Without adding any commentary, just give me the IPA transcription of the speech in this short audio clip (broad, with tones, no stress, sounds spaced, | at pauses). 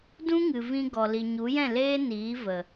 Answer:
d ũ˦ ŋ ɨ˨ v ĩ˧ ɡ ɔ˨ l i˨ ɲ u˨˦ j ɛ̃˦˨ l eː˦ n iː˨˦ v ə˨